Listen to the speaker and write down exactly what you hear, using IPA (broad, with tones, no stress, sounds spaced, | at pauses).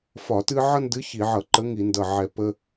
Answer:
f ɒ˧˩˧ t ɨ˦ ʕ ʌ˦ n d ɨ˨˥ ç i˧˩˧ ʕ ʌ˧˩˧ ǃ ə˨˥ ŋ i˧˩˧ n d ʌ˧˩ ʕ ɛ˧˩ p ə˦